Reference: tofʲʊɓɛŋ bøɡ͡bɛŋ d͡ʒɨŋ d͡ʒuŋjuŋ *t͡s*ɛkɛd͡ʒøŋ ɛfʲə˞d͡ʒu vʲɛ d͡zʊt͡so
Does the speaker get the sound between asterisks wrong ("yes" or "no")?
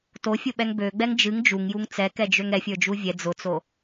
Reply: no